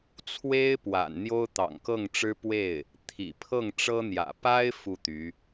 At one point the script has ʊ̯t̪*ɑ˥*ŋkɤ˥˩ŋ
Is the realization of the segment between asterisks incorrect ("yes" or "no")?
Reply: yes